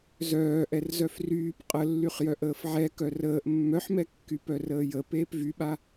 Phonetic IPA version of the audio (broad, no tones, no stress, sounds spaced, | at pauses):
z œː ʔ ɛ r z œ f r yː p qʼ ə lː y χ j œ ʔ əː f ʕ ɛ k œ r əː ʔ mː œ ħ m ɛ kː y p œ r əː j ə p eː p v y ɓ a